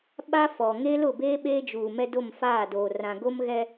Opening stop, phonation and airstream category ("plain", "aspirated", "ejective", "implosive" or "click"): implosive